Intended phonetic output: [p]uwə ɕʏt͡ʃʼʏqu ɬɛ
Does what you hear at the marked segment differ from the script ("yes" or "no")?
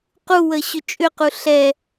yes